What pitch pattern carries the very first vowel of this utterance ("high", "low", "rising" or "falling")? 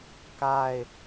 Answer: falling